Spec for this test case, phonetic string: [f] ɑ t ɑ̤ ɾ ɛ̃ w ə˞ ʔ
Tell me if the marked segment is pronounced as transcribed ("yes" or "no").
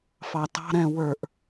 yes